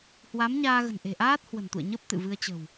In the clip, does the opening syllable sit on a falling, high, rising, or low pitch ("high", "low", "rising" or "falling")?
rising